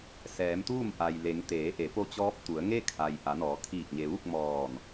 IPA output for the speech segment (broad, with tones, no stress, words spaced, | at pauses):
sɛː˩˧mt̪uː˥˨mʔa˩jle˩˧ŋ t̪eː˩˧ʔe˩˧ po˧t͡ɕɔː˧˥p̚t̪u˩˧ə̯ŋe˥˨ kʰa˩j ʔa˩˧nɔː˩˧kʰiː˧˩k̚ ɲe˩ʋu˥˨k̚ mɔː˧˩n